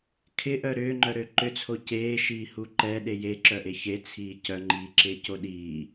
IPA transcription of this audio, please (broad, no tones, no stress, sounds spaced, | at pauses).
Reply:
kʰ ɪ ʔ œ ɾ ʏː ŋ͡ǃ œ ɾ ø ǃ ʏ t͡sʰ o c eː ʃ iː h u ǃ ɛ ɗ e j e ǁ œ ʔ e ç e t͡sʰ iː c œ ŋ͡ǃ iː ǁ ɪː c o ɗ iː